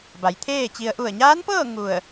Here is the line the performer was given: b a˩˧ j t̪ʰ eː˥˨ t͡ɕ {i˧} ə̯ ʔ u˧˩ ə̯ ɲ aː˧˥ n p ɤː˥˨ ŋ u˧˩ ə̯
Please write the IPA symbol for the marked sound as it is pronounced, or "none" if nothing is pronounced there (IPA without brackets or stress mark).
i˧